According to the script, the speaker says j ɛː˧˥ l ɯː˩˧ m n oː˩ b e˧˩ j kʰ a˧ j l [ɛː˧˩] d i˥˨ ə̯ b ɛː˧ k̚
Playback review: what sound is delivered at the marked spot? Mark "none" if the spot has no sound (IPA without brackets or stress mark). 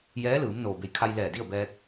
ɛː˧˩